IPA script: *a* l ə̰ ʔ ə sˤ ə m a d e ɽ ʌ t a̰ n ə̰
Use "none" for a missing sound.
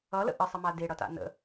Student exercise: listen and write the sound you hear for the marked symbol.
ʌ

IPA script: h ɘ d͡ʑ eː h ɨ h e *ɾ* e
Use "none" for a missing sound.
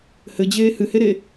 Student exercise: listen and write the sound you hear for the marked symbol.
ɾ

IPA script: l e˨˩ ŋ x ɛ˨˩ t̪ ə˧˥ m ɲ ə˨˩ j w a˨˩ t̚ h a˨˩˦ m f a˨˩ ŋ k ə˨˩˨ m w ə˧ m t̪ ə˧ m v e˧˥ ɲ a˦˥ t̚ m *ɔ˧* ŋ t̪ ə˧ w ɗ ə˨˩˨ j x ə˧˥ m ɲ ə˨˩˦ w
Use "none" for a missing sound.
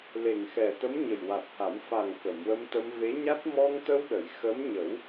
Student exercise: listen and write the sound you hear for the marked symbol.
ɔ˧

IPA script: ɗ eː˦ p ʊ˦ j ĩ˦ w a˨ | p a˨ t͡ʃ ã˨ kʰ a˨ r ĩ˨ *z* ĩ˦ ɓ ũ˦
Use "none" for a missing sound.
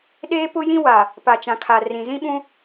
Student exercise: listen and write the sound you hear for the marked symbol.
z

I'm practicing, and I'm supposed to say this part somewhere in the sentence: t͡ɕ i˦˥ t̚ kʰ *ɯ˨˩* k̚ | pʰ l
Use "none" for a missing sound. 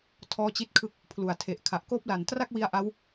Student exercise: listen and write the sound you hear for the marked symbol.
ɯ˦˥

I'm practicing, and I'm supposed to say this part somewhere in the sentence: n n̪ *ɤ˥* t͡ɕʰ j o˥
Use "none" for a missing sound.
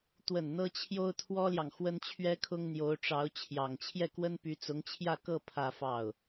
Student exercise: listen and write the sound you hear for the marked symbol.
ɤ˥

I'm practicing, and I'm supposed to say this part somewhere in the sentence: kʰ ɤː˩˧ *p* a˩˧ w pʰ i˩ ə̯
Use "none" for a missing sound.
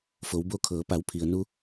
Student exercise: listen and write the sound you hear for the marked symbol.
p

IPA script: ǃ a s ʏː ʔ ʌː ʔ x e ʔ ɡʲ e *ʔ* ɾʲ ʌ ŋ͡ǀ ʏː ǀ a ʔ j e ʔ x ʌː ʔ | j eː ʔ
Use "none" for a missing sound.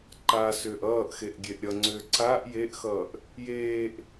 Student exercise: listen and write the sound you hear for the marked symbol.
ʔ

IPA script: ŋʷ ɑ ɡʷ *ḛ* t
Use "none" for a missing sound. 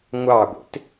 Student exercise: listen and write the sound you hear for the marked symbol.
ḛ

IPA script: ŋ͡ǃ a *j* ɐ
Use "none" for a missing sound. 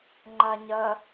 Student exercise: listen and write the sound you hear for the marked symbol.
ɲ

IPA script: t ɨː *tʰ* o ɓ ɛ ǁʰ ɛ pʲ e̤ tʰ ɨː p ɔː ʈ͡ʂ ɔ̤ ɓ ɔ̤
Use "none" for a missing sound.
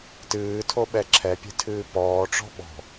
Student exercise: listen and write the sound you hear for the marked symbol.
tʰ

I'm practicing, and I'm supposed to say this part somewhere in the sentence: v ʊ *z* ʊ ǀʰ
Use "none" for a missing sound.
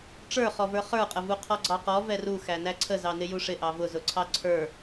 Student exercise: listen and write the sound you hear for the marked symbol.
z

